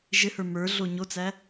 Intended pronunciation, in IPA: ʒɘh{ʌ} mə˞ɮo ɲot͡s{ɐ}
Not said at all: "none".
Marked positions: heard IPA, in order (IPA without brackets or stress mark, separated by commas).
ə˞, æ